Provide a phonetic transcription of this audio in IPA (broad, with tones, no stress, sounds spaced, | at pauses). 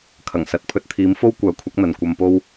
kʰ ɐ˨˩ ŋ s ɐ˨˥ t̚ pʰ ɵ˧ t̚ t̪ʰ iː˨˥ m f o˥ w kʷ œː˨˥ kʷʰ ɐ˨˥ k̚ n̪ ɐ˨ n kʷ ɐ˧ m p o˥ w